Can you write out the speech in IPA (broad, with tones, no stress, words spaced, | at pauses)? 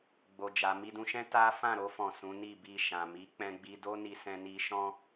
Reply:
ɡ͡bo˧d͡ʒa˧ mi˧dũ˧ʃɛ̃˦ ta˦ fã˦˨ɾo˧fɔ̃˨ sũ˨˦ni˦˨bi˧ ʃã˨mi˨˦ k͡pɛ̃˧ɡ͡bi˧do˦ni˧ sɛ̃˧ni˧ ʃɔ̃˦